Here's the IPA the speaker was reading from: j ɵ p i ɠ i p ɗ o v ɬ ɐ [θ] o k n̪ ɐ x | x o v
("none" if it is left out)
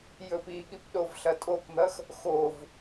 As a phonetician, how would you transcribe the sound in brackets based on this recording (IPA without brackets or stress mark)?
tʼ